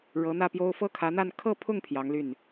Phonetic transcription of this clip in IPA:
ɻɤ˧˥n̪ä˥˩pjo˥ʊ̯ fɤ˥kʰä˧˥n̪a˥˧n kʰɤ˥˧pʰʊ˥˩ŋ pʰjɑ˧˥ŋly˥˩n

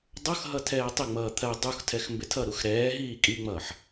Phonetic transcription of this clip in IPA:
dˤʌxɦʌ tʰɛːtˤɪŋ͡mʌː t̪ʰɜ dˤuxtʰɛx mbɪtʰʌɾux ɾɛːɦiː kʼiŋ͡mʌːħ

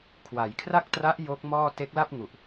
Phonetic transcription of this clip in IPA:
kʰwa˩˦j kʰra˥˩k̚tra˦˥ʔ jo˦˥k̚mɔː˥˩ te˦˥k̚la˥˩p̚ŋu˨˩ʔ

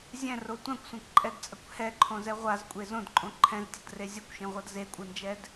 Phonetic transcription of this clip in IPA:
zʲɛ̃ro tʷãkʷsʷãkʷǃʼɛdt͡sʼʌkʷ hɛǃʰõzɛ ʁʷazkʷʼe zõdǃʼõ ǃʰɛ̃ztʲʌdre zʲʌkʷʃẽʁʷʌd zekʷʼɯnd͡ʒɛd

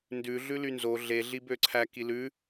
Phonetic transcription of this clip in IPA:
ndʉ ɮʉlynzo ɮe ɮibøǀʰæ kilʉ

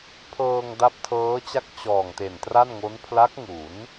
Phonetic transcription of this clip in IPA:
pʰɤː˧ŋda˦˥p̚tʰɤː˦˥t͡ɕa˥˩k̚ t͡ɕɔː˨˩ŋte˨˩ntra˥˩nŋo˦˥n pʰla˦˥k̚ŋu˩˦n

